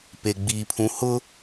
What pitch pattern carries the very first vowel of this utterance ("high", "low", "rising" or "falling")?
low